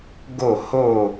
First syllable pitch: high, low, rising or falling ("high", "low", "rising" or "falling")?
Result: falling